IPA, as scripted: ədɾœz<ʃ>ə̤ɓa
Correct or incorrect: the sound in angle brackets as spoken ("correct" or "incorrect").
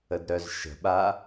correct